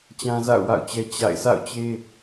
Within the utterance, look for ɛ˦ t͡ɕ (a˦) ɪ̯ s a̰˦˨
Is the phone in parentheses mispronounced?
yes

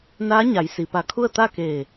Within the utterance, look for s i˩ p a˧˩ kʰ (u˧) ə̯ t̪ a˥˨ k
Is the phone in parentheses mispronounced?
yes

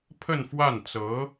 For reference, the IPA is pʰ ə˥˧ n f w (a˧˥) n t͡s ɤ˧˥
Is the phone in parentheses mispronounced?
yes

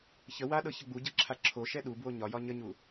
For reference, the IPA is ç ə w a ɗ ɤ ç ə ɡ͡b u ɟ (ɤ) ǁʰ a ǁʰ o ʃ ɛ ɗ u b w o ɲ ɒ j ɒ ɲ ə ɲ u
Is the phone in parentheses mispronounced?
no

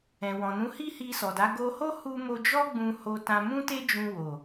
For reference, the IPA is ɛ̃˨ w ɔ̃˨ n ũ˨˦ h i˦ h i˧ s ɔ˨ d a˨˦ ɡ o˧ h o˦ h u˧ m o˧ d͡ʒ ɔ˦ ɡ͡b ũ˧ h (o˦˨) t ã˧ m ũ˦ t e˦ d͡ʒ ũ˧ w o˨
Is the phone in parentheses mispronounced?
yes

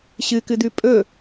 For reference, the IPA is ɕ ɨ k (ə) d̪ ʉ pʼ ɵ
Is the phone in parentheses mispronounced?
yes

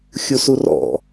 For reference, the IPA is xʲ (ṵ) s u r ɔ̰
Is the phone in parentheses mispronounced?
yes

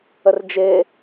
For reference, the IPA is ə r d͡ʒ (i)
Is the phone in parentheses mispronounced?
yes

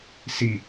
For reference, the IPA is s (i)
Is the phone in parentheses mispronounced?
no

